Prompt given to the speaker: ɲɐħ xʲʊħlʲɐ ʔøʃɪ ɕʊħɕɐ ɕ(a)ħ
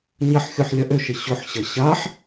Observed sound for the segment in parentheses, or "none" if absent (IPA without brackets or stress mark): a